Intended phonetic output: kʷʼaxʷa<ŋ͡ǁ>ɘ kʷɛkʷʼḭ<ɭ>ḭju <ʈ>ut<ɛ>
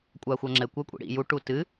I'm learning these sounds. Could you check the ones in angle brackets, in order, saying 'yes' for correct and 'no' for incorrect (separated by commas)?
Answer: yes, no, yes, no